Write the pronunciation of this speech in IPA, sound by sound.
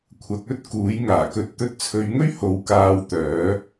kʷʰ ɐ˨˥ k̚ ɵ˥ t̚ k uː˨˥ j ŋ aː˨˩ k ɵ˨ t̚ t̪ ɵ˧ t̚ t͡sʰ ɵ˨˧ ɥ ŋ ɵ˥ ɥ h o˨˥ w k aː˧ w t̪ œː˨˥

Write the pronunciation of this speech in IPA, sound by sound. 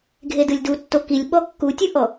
ɡʱ e d ɯ lʲ d u tː o k i lʲ ɓ ɔ kː u tʲ ɯ ʔ ɔ

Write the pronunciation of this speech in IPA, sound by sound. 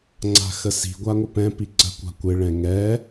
ŋ͡ǀ a̤ x ə s i̤ ɡʷ a ŋʷ ə p ɛ̃ p i ǀ ə̤ kʷ a̤ kʷ ɪ ɭ ɛ̃ ŋ ɛ

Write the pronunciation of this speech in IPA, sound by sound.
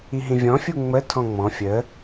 i ɦ ĩ vʲ ɔ̃ fʲ u ŋ͡m ə tʰ ɔ̃ ŋ͡m ɔ̃ fʲ ə

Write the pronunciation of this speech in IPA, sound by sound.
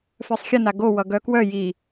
f œ sˤ xʲ ʌ n a ɡ o w ʌ ɡ œ k w œ j i

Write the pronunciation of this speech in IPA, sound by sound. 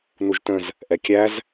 n u ʒ t ə̃ z | ʔ ɛ kʲ æ z

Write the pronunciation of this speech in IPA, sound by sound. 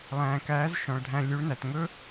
lˠ æ̃ː˨ k æː˨˦ z ʃ ɔ̃˨ ɭ dʱ æ̃˧ lʲ ʉ˨˦ ɭ n æ˨ t ŋ ɵ˦

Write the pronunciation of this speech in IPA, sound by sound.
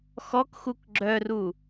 x ɔ k x u k ɡ͡ǁ œ r u

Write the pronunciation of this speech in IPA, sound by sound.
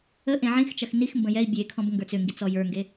ə ʔ ẽ ʕ ĩ x t͡ʃ ɐ x n i x m b ə̃ j ɛ i̯ bʲ e kʰ ɔ̃ b ŋ ɡ ə˞ t͡s ʏ ŋ ɡ i t͡s ɔ j ə˞ ŋ ɡ e

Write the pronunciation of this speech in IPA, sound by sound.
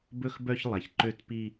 b ɵ˥˧ x b œ˥˧ ç lˠ æ˩ ç ǃ ø˥˧ t p i˥˧

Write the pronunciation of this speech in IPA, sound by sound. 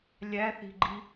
lʲ æ θ i̤ ɡ͡ǃ i

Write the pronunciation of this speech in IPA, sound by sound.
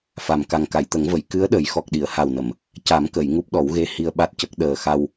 f a˨˩ m k a˨˩ ŋ k a˨˩˨ j t̪ ə˨˩˦ ŋ v ə˨˩˨ j k ɨ˧˥ ə̯ ɗ ə˨˩˦ j x ɔ˨˩ k̚ ɗ i˨˩˨ ə̯ h a˨˩ w n ə˨˩˨ m | c a˨˩˦ m k ə˨˩˨ j ŋ u˦˥ p̚ ɗ ɔ˨˩˦ w ɣ e˧ h i˧ ə̯ ɓ a˦˥ t̚ c ə˦˥ k̚ ɗ əː˨˩ x a˧ w

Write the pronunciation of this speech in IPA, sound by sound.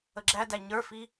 ə ɡ͡ǁ æ d æ ɲ ə˞ f i

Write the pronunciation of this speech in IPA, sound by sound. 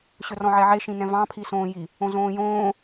ɕ ɵ r ɔ̃ ʕ ɛ ʕ e ʃ ĩ n ɛ̃ v ɑ̃ pʰ i s õː j i | õ z õː j õː

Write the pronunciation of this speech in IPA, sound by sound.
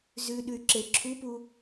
z ʉ ɗ ʉ y̯ ǁ e ǁʰ u p u

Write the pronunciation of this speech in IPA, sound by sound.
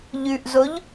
ʎ ʉ ʔ z o ʎ

